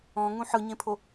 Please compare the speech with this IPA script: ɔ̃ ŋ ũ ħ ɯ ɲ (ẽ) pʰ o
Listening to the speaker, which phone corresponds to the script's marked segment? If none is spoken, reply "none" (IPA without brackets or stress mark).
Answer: ẽ